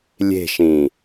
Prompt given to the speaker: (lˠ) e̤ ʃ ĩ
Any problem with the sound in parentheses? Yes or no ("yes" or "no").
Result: yes